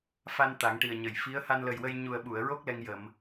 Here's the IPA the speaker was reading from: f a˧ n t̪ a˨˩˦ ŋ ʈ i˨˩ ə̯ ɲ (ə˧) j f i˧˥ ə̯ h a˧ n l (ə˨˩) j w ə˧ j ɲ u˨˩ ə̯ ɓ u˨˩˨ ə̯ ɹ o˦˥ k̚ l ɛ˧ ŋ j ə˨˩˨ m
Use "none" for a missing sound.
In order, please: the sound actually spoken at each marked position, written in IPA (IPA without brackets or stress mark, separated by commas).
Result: ə˨˩˨, ə˨˩